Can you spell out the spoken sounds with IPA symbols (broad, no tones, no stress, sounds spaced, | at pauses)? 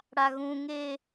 ɽ a ɣ ũ ŋ e